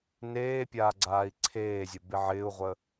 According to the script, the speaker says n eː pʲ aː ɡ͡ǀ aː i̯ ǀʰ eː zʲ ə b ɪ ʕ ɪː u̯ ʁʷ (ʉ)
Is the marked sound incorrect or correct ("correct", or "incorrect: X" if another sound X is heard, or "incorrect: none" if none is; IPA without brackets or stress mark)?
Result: incorrect: ə